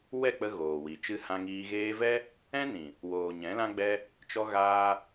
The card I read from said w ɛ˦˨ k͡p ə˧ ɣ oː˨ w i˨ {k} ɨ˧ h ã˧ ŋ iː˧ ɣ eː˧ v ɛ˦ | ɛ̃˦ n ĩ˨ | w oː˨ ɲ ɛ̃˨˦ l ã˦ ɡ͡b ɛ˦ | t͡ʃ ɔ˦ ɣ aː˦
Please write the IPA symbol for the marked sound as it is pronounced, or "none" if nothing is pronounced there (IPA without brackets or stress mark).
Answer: t͡ʃ